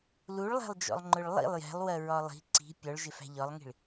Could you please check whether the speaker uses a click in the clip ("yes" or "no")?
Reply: yes